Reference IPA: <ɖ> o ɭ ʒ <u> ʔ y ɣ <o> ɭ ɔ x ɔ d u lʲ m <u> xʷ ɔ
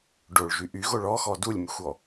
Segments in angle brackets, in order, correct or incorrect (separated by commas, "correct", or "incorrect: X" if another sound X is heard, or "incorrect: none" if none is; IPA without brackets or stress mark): correct, incorrect: y, correct, incorrect: y